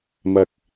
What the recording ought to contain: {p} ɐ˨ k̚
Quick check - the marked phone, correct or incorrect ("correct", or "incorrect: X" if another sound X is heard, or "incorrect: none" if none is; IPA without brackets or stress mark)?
incorrect: m